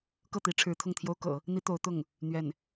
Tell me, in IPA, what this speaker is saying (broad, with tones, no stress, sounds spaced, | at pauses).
k ɤ˥˩ t̪ i˧˥ ʈ͡ʂʰ ɻ̩˧˥ t̪ʰ ʊ˥˩ ŋ t̪ʰ j o˥ ʊ̯ k ɤ̰˨˩˦ | n̪ i˥ t̪ o˧˥ ʊ̯ t̪ ʊ˥˩ ŋ | n̪ ɥ ɛ˥˩ n